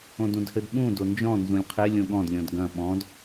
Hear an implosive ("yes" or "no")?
yes